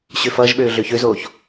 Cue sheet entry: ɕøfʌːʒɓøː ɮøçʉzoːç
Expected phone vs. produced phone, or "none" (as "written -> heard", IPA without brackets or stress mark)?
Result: ʉ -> ø